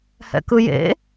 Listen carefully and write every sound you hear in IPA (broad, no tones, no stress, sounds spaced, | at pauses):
h ɛ̰ k ɯ j ḛ